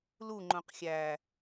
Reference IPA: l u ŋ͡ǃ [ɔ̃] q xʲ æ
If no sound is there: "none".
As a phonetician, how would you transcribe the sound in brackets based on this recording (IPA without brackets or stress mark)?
õ